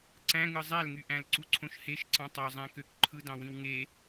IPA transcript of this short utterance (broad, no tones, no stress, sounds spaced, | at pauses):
ǀ æ̃ ŋ ɯ zˤ æ l ŋ y ʔ æ̃ l ǀ u ǀʰ õ ʃ h e ʃ ǀ ɑ̃ tˤ ɑ zˤ æ̃ k ø k ǃʰ ɯ d ɑ̃ w ĩ w ŋ e